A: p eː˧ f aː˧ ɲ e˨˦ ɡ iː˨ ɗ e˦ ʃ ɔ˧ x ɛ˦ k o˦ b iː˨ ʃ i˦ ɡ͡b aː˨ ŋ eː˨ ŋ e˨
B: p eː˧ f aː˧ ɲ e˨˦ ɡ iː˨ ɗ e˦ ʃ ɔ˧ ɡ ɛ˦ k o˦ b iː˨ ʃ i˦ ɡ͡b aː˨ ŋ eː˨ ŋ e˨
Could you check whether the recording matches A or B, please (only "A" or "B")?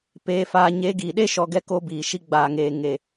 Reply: B